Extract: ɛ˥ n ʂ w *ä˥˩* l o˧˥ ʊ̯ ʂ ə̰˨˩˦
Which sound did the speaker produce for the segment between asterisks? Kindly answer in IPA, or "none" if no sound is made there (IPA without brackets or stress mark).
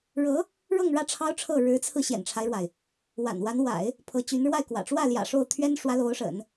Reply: ä˧˥